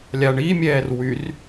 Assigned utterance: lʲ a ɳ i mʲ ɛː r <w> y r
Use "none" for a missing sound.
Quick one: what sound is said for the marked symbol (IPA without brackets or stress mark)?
w